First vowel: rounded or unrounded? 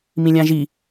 unrounded